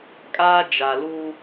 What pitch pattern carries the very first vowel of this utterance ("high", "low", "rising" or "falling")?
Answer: high